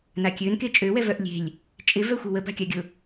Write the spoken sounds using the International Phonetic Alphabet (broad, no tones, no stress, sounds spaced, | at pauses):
n a kʲ ø n k e t͡ʃʼ ø w ɛ v œ ʔ lʲ e̤ lʲ | t͡ʃʼ ɪ v œ xʷ e w ə b a̤ kʲ a ɡʲ ʊ